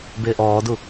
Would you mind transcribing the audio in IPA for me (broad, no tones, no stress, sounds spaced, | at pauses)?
b ɪː ʔ ɔː d u